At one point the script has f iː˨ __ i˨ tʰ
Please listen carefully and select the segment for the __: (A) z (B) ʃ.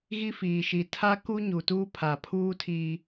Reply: B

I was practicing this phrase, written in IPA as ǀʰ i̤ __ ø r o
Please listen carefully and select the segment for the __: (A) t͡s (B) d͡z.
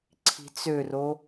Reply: A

